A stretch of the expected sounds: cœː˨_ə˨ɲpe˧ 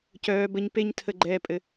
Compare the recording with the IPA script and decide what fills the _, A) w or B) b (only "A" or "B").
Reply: B